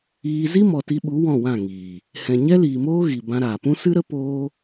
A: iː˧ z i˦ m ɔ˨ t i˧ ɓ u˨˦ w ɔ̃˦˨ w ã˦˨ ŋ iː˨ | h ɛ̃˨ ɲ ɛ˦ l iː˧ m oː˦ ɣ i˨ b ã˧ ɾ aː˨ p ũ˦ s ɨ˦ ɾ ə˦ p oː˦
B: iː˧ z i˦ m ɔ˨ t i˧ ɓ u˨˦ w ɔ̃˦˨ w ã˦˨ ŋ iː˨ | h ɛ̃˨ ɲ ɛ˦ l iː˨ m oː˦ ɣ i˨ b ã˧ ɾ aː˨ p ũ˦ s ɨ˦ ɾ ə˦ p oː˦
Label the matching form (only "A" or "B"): B